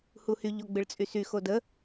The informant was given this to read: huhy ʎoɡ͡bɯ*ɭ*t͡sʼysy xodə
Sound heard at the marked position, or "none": ɭ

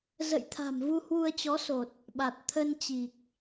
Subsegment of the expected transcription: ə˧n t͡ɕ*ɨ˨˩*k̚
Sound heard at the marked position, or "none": i˨˩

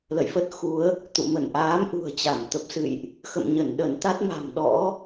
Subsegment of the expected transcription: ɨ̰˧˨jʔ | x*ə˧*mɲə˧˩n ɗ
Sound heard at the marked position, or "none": ə̰˧˨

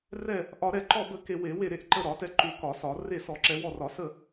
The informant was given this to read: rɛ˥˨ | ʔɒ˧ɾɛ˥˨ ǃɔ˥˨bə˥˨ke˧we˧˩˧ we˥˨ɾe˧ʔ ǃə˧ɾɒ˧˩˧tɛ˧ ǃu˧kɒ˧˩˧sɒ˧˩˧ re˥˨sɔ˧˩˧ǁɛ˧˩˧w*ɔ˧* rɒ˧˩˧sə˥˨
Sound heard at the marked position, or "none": ɔ˥˨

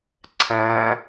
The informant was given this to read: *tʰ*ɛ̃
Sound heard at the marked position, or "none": ǀʰ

